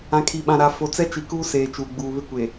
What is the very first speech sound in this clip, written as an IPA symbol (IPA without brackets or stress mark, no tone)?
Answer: ã